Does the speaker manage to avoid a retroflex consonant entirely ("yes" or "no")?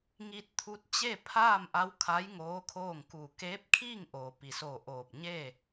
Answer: yes